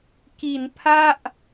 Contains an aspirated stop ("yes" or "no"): yes